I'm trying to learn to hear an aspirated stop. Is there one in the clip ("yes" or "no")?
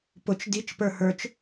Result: no